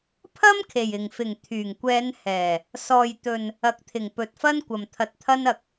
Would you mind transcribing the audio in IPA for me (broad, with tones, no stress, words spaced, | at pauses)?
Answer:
pʰɐ˥mkʰe˨˩j ɪ˨˩ŋfɪ˨˩ŋ t̪ʰyː˨˩ŋkʷɛː˨˧nhɛː˨˩ | sɔː˨jt̪ɵ˨n | ɐ˨˥k̚t̪ʰɪ˨˩ŋ pɵ˨t̚fɐ˥n kʷɐ˨mt̪ʰɐ˧t̚t̪ʰɐ˥nɐ˧k̚